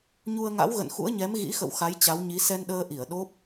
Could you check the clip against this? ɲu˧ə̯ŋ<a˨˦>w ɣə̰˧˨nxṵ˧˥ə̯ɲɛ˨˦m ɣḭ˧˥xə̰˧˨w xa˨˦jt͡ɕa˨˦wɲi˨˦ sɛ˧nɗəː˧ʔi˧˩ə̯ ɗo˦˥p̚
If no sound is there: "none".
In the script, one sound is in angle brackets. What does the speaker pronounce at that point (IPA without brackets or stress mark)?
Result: a̰˧˥